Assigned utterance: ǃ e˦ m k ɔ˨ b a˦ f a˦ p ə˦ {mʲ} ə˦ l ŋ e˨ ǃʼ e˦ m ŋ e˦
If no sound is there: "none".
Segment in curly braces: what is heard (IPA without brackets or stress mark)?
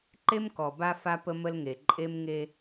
m